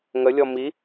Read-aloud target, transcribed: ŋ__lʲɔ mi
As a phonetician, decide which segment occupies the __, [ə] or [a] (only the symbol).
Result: ə